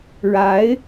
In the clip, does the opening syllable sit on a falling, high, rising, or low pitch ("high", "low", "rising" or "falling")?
rising